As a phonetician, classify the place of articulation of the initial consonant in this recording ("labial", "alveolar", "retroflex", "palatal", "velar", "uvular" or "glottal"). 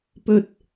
labial